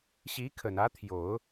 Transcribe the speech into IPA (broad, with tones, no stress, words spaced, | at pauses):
ɕi˧˥kʰə˨˩n ä˧˥t̪ʰjo˨˩˦ʊ̯